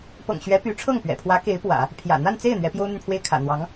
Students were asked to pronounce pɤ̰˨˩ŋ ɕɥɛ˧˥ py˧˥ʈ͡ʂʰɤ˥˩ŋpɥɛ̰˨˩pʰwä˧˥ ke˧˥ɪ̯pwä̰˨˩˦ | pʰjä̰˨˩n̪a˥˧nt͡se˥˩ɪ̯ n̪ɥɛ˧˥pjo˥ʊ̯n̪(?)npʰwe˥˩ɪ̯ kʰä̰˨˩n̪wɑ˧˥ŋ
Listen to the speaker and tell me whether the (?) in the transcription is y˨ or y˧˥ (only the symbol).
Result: y˨